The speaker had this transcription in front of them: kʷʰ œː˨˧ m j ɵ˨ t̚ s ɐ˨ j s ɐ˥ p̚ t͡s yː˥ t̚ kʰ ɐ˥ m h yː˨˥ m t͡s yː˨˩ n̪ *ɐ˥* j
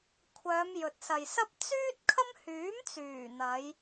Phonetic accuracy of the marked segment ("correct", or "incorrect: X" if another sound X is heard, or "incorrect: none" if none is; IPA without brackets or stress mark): incorrect: ɐ˨˧